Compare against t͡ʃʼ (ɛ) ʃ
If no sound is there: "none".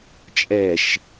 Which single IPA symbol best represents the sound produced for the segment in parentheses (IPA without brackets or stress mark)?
ɛ